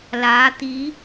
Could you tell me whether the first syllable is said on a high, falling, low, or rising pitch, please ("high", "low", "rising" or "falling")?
rising